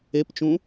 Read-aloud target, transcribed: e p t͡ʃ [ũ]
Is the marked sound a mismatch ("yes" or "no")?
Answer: no